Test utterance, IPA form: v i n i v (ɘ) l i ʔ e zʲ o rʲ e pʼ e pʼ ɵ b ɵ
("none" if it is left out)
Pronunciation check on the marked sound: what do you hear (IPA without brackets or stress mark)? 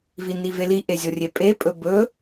e